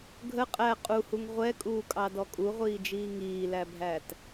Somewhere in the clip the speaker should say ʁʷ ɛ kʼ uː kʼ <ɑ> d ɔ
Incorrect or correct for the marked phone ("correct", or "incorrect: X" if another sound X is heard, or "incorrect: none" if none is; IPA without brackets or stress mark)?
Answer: correct